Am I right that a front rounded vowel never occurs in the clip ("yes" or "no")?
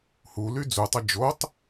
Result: no